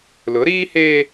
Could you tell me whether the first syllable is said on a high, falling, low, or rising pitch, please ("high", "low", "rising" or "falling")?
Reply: rising